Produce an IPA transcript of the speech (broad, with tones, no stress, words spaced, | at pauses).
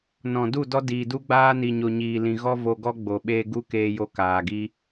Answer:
nɔ̃˨ du˦˨dɔ˦ diː˨du˦ɡ͡baː˦ ni˨ɲo˨ ɲiː˨lĩ˨ɣɔ˦ vo˧ɡɔ˦ ɡ͡bo˨ɓeː˧ɡu˦keː˧ jo˦kaː˨ɡi˦